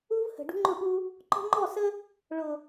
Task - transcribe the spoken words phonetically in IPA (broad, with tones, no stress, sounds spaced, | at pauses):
u˦ v h ə̤˨ ɖ ṳ˦ ŋ͡ǃ ʊ˦˨ ɓ u˦ | ǃ ɔ̤˦ ŋ͡ǃ ɔ˦˨ s ə˦ | ɭ ʊ˨